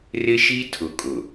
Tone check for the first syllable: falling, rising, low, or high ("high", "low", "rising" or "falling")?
high